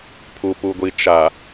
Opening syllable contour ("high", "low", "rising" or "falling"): low